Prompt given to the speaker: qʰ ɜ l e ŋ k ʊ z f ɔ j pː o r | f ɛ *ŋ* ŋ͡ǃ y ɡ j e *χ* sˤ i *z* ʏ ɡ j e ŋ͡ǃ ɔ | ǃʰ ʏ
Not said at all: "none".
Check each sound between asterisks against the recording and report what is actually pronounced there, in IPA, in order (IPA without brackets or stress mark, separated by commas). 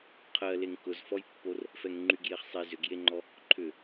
ŋ, χ, z